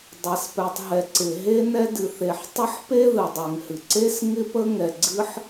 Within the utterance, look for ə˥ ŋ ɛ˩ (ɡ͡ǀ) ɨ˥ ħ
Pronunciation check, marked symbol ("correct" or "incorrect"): correct